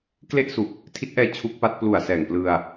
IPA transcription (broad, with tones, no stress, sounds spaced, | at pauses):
k l e˥˩ ʔ s u˨˩ k̚ | tʰ i˦˥ t̚ ʔ ɛː˧ t͡ɕʰ u˦˥ k̚ p a˦˥ t̚ p l u˨˩ a̯ s ɛː˨˩ ŋ p l ɯ˧ a̯